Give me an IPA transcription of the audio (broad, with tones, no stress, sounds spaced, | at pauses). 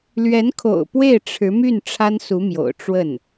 l ɥ ɛ˧˥ n kʰ o̰˨˩ ʊ̯ p w e˥˩ ɪ̯ ʈ͡ʂʰ ɻ̩˧˥ m y˥˩ n ʈ͡ʂʰ a˥ n s u˧˥ m j o̰˨˩ ʊ̯ ʈ͡ʂ w ə˥˩ n